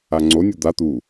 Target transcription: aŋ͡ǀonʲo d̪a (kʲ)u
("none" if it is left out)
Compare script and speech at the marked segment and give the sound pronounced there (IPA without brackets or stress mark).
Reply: t̪